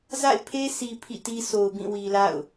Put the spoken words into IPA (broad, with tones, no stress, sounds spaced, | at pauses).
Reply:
z a̰˦˨ ɪ̯ pʰ e˦ sʰ i˨ pʰ ḭ˦˨ t i˦ s o˨ ʊ̯ b ĩ˦˨ w i˨ l a̰˦˨ ʊ̯